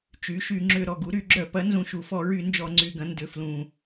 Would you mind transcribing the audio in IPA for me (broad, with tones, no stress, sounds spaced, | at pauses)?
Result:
t͡ʃ y˩˥ ʃ y˧˩˧ ŋ͡ǁ ʏ˧˩˧ ɾ ɔ˨˩ ɡ u˩˥ ɾ y˧˩˧ ɡ͡ǁ œ˧˩˧ p ɐ˩˥ n z ũ˨˩ ʃ u˨˩ f ɔ˧˩˧ ɹ y˧˩˧ n d͡ʒ ɔ˧˩˧ ŋ͡ǀ y˨˩ ɡ ɐ̃˩˥ n d ʏ˨˩ f l ũ˨˩